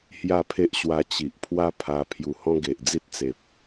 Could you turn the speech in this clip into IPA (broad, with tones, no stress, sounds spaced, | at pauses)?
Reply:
h j a˥˧ pʰ e˦ ʔ ɕ w a˧ t͡ɕ i˨ ʔ pʰ w a˦ pʰ a˧ pʰ j u˧ h ɔ̃˦ ɡ e˨ ʔ d͡z i˦ t̚ t͡s e˨ p̚